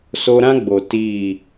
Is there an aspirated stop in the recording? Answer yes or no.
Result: no